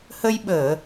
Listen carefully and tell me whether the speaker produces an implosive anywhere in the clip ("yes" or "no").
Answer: yes